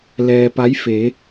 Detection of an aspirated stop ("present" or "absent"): absent